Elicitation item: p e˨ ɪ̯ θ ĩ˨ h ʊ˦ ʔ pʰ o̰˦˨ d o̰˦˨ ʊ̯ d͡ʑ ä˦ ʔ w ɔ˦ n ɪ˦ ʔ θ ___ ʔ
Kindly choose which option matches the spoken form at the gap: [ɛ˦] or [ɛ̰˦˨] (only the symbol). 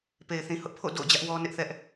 ɛ˦